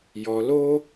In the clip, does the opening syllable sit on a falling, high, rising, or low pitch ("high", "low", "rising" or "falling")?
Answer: low